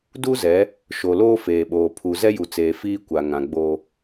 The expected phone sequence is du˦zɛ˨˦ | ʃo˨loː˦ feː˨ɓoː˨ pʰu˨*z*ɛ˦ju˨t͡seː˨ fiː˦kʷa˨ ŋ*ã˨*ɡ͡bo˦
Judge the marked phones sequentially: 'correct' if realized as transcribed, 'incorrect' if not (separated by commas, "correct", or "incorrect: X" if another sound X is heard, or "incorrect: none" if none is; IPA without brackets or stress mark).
correct, correct